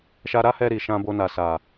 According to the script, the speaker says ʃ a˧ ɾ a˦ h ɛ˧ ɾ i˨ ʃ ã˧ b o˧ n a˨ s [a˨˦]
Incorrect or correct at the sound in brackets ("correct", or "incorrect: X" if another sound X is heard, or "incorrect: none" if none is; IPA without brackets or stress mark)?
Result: incorrect: a˨